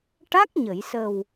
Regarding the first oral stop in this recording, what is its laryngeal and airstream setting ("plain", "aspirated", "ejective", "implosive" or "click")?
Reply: plain